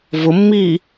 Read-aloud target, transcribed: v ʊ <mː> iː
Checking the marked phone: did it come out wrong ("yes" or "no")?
no